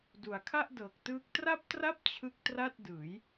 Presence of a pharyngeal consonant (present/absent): absent